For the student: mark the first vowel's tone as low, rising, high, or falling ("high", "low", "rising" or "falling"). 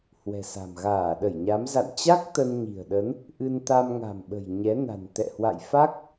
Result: low